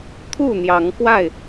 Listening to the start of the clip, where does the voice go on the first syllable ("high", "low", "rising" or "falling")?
falling